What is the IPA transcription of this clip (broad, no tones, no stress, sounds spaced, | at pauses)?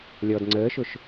lʲ ɔ d ŋ͡ǀ əː ʃ ʊ ʃ